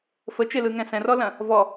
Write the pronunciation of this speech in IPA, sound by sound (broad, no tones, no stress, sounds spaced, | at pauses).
f ə t͡ʃ e l ɯ ŋ ɛ̃ s ɛ̃ r ɔ l ɐ̃ | v ɔ